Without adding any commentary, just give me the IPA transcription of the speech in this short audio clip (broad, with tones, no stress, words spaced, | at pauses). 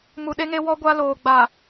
mu˨ɗe˦ŋe˦ wɔ˦ɡʷa˦ loː˨ɡ͡ba˨